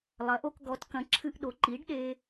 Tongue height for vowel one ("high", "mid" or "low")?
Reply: low